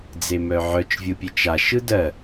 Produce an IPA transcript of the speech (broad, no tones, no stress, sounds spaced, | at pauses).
d͡z e m œ ʕ œ t͡ʃ vʲ ɯ pʲ e t͡ʃ a ʃ ɯ d ɜ